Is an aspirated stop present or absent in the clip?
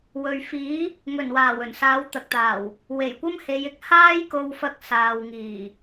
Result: absent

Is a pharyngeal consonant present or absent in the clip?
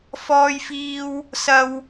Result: absent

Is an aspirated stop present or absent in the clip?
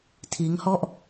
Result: present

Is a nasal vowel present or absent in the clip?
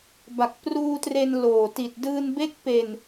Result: absent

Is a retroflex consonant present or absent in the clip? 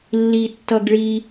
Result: present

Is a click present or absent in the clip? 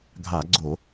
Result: present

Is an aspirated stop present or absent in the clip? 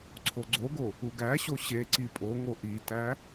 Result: present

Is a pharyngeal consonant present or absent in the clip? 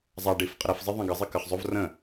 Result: absent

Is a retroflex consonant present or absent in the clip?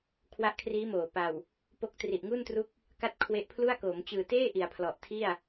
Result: absent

